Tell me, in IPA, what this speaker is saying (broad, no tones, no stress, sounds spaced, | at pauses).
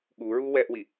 ɠ u ɹ u w ɛ ʔ w i